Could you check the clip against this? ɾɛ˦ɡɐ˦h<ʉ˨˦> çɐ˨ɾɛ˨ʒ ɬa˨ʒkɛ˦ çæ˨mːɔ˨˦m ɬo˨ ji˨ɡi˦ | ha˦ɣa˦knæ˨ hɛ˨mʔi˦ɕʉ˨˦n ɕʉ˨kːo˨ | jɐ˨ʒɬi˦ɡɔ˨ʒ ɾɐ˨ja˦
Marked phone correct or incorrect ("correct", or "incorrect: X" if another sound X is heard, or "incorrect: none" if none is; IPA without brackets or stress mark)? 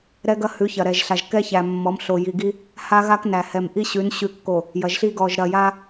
correct